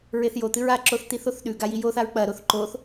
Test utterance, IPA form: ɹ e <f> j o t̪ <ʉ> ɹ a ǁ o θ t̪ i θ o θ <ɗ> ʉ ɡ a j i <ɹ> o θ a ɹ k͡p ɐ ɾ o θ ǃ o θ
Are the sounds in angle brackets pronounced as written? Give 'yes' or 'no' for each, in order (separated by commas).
no, no, yes, no